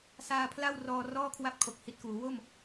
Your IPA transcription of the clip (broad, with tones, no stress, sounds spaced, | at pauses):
s aː˧ pʰ l a˥˩ w r ɔː˧ r ɔː˥˩ kʰ w a˥˩ p̚ kʰ o˨˩ k̚ h i˨˩ t̚ k uː˩˦ w o˥˩ m